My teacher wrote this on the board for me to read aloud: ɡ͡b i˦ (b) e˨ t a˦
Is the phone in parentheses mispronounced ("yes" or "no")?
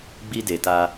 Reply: yes